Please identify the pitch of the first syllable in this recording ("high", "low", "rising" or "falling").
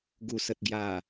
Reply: low